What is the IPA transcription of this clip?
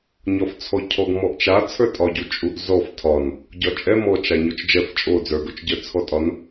ɲɒft͡sʰɔcʰɔɡ mɔʔt͡ʃa t͡sʰə˞tʼɒɟu t͡ʃʼuʔzɔf tʰɒn | ɟɒt͡ʃʼɛ mɔt͡ʃa ɲot͡ʃd͡ʒɛf t͡ʃʼo d͡zə˞ɡot͡ʃɟə˞ t͡sʰɔtʼɒn

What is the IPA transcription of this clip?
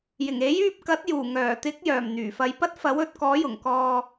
jɪ˨˩ŋe˨˥jyː˧p̚kɐ˨˥t̚ juː˨˩ŋœː˨˩ t̪ɪ˨˥k̚ jœː˨˩m n̪yː˨˩fɐ˨˧jpɐ˥t̚ fɐ˨˥wɵ˨˥t̚kɔː˨˥jʊ˨˩ŋ kɔː˧

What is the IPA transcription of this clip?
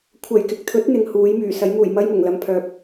kʷʰɐ˨˩jkɪ˨k̚t̪ʰɵ˨˥t̚ n̪ɪ˨ŋhuː˨˥jmyː˨˩ sɐ˨˥jmuː˨˩j mɐ˥jmʊ˨˩ŋlɐ˧mpʰœː˨p̚

